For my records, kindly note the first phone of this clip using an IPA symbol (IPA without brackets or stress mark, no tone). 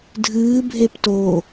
dʱ